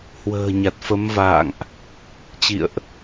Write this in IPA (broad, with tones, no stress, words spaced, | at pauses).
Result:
hwə̤ː˨˩ɲa˨˩t̚fə˨˦mva̰ː˧˨ŋʔ | t͡ɕḭ˧˨ə̯ʔ